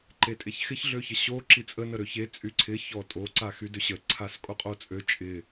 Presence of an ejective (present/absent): present